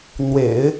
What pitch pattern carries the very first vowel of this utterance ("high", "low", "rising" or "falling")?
low